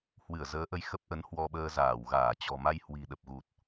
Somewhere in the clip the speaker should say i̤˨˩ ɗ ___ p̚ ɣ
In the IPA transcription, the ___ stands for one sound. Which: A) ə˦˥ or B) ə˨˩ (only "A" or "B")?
B